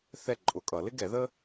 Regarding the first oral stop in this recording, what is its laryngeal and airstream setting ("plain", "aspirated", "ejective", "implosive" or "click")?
click